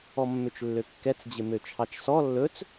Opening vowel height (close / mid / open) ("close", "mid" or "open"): mid